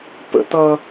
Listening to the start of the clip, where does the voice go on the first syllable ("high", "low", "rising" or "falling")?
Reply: high